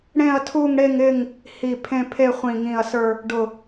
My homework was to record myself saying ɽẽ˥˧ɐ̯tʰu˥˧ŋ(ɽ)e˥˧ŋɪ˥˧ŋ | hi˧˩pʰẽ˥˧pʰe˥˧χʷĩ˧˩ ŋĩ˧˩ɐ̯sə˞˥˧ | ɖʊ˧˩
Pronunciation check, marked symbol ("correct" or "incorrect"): correct